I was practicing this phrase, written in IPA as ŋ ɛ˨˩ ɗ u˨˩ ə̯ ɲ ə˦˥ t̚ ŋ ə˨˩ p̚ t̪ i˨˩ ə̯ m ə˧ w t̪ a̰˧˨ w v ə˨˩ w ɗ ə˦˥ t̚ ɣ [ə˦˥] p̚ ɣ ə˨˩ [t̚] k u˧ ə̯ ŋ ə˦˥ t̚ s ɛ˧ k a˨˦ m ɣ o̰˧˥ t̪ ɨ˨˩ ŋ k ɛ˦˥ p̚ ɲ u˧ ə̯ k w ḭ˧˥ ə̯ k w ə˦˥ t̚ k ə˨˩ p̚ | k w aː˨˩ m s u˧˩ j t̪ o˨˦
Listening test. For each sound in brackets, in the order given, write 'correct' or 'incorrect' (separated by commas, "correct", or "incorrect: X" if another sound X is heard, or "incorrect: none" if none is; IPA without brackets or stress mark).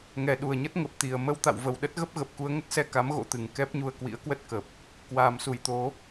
correct, incorrect: p̚